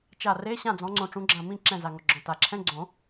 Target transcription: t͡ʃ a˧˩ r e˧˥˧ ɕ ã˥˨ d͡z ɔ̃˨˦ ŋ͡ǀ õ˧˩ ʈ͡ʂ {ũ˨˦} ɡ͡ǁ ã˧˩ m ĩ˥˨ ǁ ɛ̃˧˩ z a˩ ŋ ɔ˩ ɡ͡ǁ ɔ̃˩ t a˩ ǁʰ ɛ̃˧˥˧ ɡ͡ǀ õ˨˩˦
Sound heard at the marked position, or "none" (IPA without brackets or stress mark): ũ˨˦